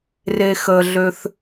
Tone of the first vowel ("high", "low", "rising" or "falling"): low